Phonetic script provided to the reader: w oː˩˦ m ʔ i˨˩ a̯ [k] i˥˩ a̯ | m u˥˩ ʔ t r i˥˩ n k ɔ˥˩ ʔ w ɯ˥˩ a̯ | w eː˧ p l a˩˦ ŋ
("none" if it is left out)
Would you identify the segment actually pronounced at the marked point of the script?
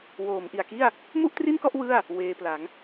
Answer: k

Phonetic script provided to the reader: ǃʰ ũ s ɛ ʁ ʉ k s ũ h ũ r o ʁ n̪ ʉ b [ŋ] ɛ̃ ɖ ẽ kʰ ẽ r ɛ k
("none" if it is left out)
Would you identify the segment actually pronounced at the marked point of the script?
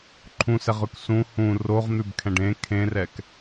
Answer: kʰ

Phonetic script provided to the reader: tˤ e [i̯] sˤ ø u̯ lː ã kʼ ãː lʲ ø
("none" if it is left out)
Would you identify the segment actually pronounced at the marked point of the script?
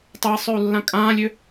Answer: i̯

